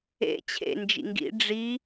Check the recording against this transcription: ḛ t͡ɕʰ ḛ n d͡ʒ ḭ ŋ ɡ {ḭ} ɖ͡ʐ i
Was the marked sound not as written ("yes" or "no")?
no